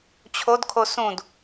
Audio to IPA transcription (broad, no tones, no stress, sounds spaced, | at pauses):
t͡ɕʰ o d kʰ o s ũ d